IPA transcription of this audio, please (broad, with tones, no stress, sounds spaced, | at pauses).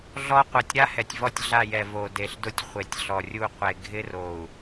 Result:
ɮ ɔ˦ qʷ ɛ˨ tʲ ɾ a˦ h ɛ˨ tʲ v ɔ˦˨ tʲ ɮ a˦˨ j ɛ˨ v o˨ d e˨ ɬ d ʊ˦ tʲ χʷ e˨ tʲ ɬ ɔ˨ rʲ u˦˨ qʷ e˨ ɡʱ ɪ˦ r o˨ u̯